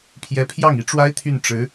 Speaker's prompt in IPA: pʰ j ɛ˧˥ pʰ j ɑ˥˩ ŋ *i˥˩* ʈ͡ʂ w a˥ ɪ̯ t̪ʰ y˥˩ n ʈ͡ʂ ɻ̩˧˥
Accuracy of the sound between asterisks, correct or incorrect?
incorrect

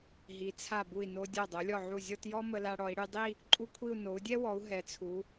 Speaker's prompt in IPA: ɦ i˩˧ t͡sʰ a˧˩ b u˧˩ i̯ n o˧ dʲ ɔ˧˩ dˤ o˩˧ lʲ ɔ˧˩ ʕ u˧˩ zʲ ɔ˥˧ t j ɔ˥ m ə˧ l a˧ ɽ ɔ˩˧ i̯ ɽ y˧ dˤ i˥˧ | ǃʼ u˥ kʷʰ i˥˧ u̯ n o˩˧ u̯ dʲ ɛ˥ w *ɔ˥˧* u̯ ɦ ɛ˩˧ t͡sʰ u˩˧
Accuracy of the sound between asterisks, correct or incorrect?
incorrect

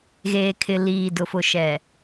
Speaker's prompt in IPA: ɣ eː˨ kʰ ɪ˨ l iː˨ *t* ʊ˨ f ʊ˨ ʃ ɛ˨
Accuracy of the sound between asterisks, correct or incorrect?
incorrect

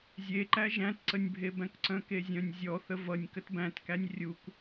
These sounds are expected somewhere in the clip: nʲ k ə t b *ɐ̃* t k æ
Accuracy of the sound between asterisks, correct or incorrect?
incorrect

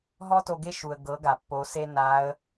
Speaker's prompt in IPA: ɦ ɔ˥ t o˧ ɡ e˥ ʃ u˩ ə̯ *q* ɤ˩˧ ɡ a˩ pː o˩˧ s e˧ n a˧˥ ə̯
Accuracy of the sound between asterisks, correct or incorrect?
incorrect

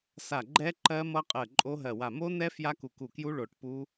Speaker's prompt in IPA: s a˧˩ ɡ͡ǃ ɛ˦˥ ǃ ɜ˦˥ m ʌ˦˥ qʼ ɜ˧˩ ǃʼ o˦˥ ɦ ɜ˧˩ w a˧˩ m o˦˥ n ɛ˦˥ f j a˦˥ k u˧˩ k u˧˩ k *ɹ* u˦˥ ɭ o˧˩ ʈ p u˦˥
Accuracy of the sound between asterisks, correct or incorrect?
incorrect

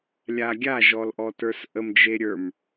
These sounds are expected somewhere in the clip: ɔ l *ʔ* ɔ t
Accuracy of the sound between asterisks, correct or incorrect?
correct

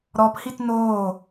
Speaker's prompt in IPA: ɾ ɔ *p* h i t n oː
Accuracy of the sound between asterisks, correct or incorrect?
correct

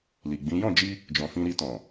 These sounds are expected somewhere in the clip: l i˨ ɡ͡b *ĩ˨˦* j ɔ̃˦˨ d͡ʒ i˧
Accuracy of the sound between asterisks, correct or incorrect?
correct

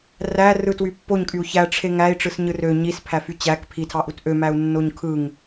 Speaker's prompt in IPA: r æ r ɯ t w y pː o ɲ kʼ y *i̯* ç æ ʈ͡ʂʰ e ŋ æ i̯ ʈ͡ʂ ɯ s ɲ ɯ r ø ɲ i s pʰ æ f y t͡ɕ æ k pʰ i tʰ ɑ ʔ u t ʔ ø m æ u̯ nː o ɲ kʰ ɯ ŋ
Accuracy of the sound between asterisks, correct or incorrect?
incorrect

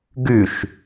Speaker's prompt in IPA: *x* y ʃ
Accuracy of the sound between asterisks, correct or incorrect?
incorrect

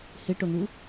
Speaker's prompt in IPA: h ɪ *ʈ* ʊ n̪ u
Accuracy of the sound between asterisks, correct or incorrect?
correct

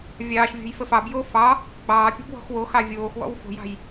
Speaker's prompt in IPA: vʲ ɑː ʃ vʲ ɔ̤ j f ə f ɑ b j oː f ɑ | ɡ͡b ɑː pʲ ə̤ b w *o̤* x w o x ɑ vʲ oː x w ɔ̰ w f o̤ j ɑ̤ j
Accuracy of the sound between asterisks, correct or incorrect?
incorrect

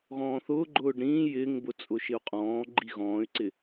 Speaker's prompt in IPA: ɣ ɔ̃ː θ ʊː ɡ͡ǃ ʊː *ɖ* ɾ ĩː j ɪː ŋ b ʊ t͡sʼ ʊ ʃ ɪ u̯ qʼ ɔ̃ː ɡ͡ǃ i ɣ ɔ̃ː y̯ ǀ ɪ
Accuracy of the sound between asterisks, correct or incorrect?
correct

